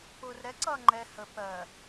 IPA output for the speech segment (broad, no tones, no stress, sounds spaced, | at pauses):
p ʊː r ɾ ɛ ǀ ʌː ŋ͡ǃ ɛ h ə p ɜ